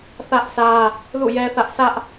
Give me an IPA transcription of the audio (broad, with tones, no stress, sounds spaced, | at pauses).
θ ä˦ ʔ s ä˦ | l ṵ˦˨ j ɛ˦ θ ä˦ ʔ s ä˦ ʔ